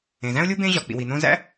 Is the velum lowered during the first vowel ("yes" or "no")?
yes